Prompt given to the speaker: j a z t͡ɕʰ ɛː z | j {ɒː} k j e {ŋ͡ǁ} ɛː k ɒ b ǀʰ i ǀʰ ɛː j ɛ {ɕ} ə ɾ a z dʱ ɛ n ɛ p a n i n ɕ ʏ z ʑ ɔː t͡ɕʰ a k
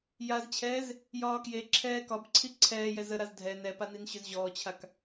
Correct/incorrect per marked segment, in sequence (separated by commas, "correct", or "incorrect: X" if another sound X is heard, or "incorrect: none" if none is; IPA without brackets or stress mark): correct, incorrect: ǁʰ, incorrect: z